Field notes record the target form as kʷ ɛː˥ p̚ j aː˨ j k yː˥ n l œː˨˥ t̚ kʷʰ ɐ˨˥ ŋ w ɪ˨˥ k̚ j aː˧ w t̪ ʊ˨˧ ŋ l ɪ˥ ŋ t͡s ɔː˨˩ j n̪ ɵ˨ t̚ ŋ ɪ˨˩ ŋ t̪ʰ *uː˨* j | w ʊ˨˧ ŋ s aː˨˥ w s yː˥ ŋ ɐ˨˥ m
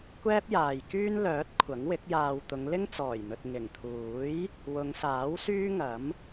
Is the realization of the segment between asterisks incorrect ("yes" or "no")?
yes